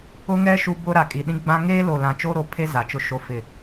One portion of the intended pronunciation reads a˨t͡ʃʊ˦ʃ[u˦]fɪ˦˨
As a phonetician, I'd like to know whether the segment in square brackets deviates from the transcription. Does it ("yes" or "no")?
yes